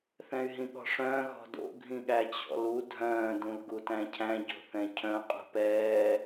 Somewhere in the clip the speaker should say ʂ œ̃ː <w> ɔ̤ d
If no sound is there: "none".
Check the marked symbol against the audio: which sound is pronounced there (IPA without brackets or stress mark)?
ɣ